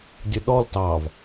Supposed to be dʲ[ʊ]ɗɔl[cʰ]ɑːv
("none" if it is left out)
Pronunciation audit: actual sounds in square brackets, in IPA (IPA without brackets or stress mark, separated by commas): ʊ, t